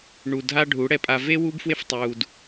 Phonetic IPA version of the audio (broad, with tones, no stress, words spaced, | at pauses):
ɳu˨dʱa˧ ɖʱu˨˦ɽɛ˦pʼa˧ ve˦ wuː˦bfwe˦ftˤuː˨d